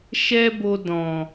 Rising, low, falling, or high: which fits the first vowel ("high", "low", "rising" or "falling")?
high